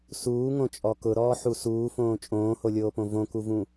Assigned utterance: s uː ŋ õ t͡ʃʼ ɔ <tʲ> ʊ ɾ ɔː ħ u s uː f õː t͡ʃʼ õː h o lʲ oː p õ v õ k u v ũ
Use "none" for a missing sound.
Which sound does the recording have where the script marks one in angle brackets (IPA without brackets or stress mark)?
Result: k